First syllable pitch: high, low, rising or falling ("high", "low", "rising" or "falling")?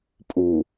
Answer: low